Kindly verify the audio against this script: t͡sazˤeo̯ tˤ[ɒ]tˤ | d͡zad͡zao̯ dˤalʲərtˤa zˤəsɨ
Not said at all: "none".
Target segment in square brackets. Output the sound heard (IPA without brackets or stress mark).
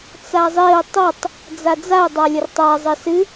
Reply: ʌ